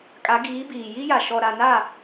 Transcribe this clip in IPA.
kʼ a˨˦ ɡ iː˨˦ b iː˨ j i˦ j a˨ ʃ ɔ˨ ɾ a˨ n a˦˨

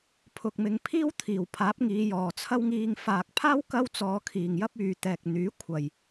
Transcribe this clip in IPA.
pʰ ʊ˨ k̚ m ɪ˨˧ ŋ pʰ iː˥ w t̪ʰ iː˨˩ w pʰ aː˨˥ p̚ ŋ iː˨˧ j ɔː˨˩ t͡sʰ ɐ˥ w ŋ iː˧ ŋ f aː˨ k̚ pʰ aː˥ w k ɐ˥ w t͡s ɔː˨˧ kʰ iː˨˩ ŋ j ɐ˥ p̚ yː˨ t̪ ɛː˨ k̚ n̪ yː˨˥ kʷʰ ɐ˨ j

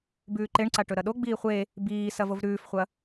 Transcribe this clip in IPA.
b ʉː ǃ e ɳ ǀ a ʈ ɵ ɾ ɐ ɗ o ɡ͡b iː χʷ e | b iː s ɐ v o v ɾ ʉː f χʷ ɐ

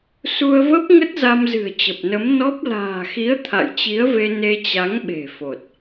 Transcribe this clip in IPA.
s u˧ ə̯ v ə˦˥ p̚ ŋ ə˦˥ t̚ z a˧ m z ɨ̤˨˩ ə̯ t͡ɕ ə˨˩ p̚ n ə˨˦ m n ɔ˦˥ p̚ l a̤ː˨˩ x i˨˦ ə̯ t̪ʰ a̰˧˨ j t͡ɕ i˨˦ ə̯ v e˧ n e˧ t͡ɕ a˨˦ ŋ ɓ e̤˨˩ f o˨˩ t̚

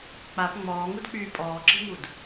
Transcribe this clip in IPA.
k͡p a p ŋ͡m ɔː ŋ u d k͡p yː pʼ ɔː ǁ i̤ ŋ u d

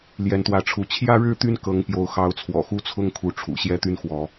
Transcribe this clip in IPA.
l j ɛ˨˦ n t̪ w ä˨˦ ʈ͡ʂʰ u˨˦ t͡ɕʰ j ä˦ ɻ ɻ̩˥˨ t̪ y˦ n k ɤ˨˦ ŋ p j o˨˦ ʊ̯ x ɑ˨˦ ʊ̯ t͡sʰ w ɔ̰˨˩ x u˦ t͡sʰ ʊ˦ ŋ kʰ u˨˦ ʈ͡ʂʰ ṵ˨˩ ɕ j ɛ˦ t̪ y˦ n x w ɔ˨˦

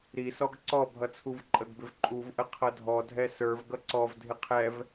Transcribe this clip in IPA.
ɾ i s ɔ ɡ ǀ ɔ bʱ ʌ t͡sʰ u v ǃʼ ə ɡ b ɪ v ǃʼ u v ʔ ə qʰ ʌ dʱ ɔ dʱ ɛ s ə˞ v ɡ ʌ ǀ ɔ v dʱ ɪ qʰ ɛ v

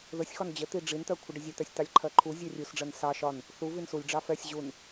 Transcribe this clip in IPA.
ð ə sʲ x ɒ n d͡ʑ ə t̪ i ɖ͡ʐ i n t̪ ɜ kʷʰ ə ɖ ə zʲ ə t̪ ɛ sʲ t̪ ɑ lʲ ǃʰ ɜ ǃʰ u zʲ ɜ rʲ u s ɖ͡ʐ ɜ n s ɑ ʃ ɒ n | θ u v i n s u lʲ ɖ͡ʐ ɑ f ɛ sʲ ʑ u n

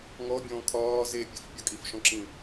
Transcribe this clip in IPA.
ŋ ɔ bʲ ɔ̃ː kʰ ɒː z e pʲ e f pʲ ɔ kʼ i f ʃ ɔ̃ ǁ ĩ

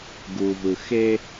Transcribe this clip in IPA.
ɡ u˨ v ɯ˨ x e˦

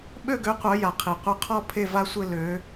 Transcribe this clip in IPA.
ɓ ø˥˧ ɡ ø˨˥ qʷ œ˩˧ j a˩ qʰ i˩ qʷ œ˥ qʰ ɔ˥˧ pʰ e˥˧ v a˥ sʷ ɘ˥˧ l ø˩˧

